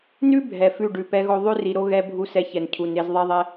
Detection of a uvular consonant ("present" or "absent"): absent